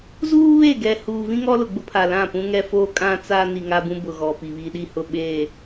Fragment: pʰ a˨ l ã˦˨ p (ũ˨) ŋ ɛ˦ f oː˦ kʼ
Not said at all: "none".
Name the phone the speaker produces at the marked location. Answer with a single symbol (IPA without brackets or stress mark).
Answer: ũ˦